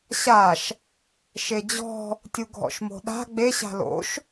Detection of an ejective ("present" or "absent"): absent